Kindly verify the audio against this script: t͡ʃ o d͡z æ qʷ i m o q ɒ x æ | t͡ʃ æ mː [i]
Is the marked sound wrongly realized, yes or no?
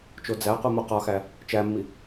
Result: no